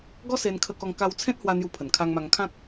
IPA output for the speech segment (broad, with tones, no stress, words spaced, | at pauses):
ɡɔ˦se˧nkʰə˧kɔ˧ŋ ka˧wt͡sʰẽ˦t̚hwa˧ n̪ju˧pʰə˨˩nkʰa˧ŋma˧ŋ kʰã˦k̚